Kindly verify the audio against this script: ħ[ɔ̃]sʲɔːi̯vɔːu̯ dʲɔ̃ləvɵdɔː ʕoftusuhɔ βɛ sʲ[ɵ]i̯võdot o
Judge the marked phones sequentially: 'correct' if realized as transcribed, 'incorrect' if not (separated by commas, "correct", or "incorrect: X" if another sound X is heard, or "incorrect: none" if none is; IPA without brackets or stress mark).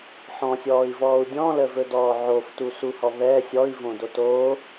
correct, incorrect: ɔ